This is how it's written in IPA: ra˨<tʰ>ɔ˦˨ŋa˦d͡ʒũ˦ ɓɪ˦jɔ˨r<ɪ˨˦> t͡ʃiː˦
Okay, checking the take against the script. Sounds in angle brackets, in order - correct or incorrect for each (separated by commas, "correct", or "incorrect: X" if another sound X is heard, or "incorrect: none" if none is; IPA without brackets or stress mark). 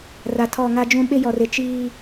correct, correct